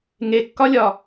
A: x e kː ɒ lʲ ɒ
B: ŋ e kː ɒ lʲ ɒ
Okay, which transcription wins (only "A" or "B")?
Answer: B